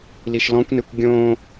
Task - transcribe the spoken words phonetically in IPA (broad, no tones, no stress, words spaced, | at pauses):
liʃlɔ̃kʷnekʷ ɡʲõ